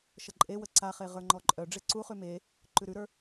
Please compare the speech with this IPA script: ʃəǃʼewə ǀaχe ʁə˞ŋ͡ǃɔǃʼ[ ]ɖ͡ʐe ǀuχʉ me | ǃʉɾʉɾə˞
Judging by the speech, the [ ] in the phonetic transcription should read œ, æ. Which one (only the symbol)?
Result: œ